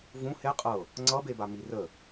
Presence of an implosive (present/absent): absent